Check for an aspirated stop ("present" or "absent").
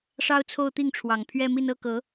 present